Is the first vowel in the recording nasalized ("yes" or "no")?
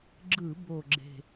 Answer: no